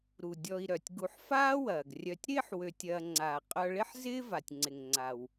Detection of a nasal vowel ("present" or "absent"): absent